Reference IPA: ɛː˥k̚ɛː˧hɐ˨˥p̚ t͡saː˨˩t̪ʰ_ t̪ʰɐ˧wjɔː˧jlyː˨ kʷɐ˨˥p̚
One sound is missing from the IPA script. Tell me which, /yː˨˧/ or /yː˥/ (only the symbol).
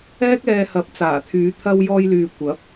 yː˨˧